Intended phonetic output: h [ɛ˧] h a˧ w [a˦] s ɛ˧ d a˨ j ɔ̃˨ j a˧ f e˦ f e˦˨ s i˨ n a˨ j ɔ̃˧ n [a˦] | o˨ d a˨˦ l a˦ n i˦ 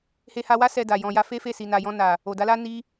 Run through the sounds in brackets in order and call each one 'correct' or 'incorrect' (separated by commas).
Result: incorrect, correct, incorrect